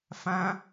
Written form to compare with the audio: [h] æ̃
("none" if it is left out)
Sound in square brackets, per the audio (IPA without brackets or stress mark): f